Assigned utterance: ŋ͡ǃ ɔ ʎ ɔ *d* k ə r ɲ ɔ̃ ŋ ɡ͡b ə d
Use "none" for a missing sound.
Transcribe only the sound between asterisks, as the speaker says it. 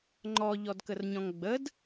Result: d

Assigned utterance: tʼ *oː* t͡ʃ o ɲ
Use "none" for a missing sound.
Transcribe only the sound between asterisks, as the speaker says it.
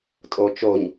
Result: o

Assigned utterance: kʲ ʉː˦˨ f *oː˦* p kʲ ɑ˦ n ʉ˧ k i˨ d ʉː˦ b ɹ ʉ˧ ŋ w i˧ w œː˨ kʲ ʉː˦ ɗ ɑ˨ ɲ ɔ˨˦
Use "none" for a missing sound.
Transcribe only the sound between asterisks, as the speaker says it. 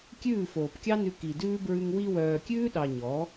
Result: oː˨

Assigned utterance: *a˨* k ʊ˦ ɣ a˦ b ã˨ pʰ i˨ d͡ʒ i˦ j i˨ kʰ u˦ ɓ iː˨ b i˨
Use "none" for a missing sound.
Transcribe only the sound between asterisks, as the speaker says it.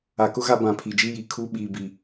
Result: a˨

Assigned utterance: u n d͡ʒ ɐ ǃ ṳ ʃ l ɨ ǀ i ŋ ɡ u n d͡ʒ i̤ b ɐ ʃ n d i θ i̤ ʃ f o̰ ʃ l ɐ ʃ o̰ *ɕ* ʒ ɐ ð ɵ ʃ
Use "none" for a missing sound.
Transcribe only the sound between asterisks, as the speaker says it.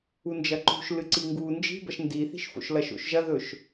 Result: ʃ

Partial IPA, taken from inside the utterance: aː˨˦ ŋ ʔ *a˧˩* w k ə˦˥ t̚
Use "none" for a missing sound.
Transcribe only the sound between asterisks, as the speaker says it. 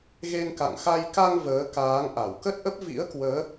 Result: a˧˩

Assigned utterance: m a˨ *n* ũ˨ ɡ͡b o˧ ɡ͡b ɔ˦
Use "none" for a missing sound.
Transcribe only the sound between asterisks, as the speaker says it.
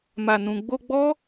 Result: n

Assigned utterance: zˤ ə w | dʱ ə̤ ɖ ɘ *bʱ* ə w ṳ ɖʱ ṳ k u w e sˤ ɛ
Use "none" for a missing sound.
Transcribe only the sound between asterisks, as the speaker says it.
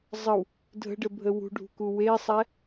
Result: bʱ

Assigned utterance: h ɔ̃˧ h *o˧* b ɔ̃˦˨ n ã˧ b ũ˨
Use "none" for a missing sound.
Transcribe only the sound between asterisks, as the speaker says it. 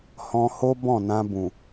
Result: o˦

